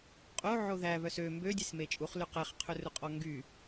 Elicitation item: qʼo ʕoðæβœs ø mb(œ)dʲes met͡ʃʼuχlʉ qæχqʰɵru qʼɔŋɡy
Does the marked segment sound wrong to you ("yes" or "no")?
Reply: yes